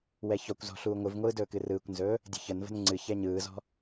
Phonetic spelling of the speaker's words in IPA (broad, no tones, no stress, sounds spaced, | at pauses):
w ɛ ç ɔ kʷ z ɔ̤ ɬ uː ŋʷ ɨ v ŋʷ ɯː d ɵː k ɨ r ɯː kʷ n z ɵː | dʲ ə̤ ç ə n v ə̤ n ŋ͡ǀ ɨ ç ɛ ɲ ɯː z ɔ̤